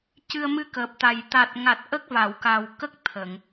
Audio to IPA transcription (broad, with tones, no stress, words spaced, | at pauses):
cɨ˧ə̯mɨ˧kəː˨˩p̚t̪a˨˩j t̪a˨˩t̚ŋa˨˩t̚ ʔə˦˥k̚va˨˩˨wka˨˩w kə˦˥k̚ t̪ʰə˨˩˨ŋ